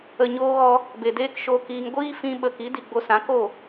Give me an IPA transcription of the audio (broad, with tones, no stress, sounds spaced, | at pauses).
ə˨ ɲ oː˧ ɣ ɔ˧ | b e˨ d eː˦ k ʃ o˧ k iː˧ ŋ ɡʷ iː˦ f ĩ˧ ɓ ə˨ k i˨˦ d i˨ ɡ͡b o˧ s ã˨˦ k o˦˨